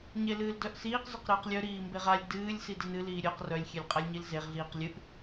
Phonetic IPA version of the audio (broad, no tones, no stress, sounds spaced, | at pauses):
ɲ e l ɨː l d œ ʔ s iː q z œ q ɾ ɨː q lʲ œ ɾ iː m b e ʁ a lʲ d ɨː lʲ s i d ɨ n ɨ l iː ɾʲ œ q r œ lʲ xʲ e lʲ qʼ a lʲ ɲ i l z e ʁ ɮ iː q lʲ ɨ ʔ